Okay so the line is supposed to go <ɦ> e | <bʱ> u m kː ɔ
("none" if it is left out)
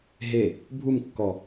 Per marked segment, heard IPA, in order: ɦ, bʱ

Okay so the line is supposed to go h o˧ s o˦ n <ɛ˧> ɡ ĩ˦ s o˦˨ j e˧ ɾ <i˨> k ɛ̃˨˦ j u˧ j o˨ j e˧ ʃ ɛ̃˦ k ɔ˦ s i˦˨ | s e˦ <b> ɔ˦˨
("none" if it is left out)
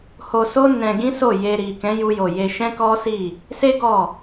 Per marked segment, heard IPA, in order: ɛ̃˧, i˨, ɡ

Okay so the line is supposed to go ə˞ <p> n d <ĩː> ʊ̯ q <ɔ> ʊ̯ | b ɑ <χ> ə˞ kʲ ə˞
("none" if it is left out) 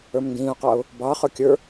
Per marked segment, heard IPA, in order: m, ĩː, ɑ, χ

